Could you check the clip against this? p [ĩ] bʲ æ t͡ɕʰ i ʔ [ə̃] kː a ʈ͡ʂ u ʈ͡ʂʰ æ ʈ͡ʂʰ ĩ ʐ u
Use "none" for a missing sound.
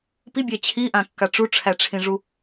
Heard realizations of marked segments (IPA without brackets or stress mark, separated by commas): i, ã